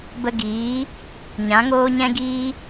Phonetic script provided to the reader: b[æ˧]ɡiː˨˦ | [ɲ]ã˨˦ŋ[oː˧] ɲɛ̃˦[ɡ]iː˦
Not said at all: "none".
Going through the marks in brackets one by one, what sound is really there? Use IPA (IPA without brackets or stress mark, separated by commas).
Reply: ə˧, ɲ, oː˦, ɡ